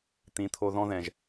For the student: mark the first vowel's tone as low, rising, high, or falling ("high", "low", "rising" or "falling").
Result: rising